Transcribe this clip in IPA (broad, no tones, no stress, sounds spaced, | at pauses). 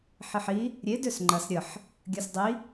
ħ i ħ i | ɾʲ e d ø s ŋ͡ǃ ɐ s ɾʲ ə ħ | ɡʲ ɐ s dˤ i